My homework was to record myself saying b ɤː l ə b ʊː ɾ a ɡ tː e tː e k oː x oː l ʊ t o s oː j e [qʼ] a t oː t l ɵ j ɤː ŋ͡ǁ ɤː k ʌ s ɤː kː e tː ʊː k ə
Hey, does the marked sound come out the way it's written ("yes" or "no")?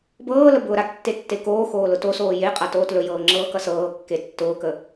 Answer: yes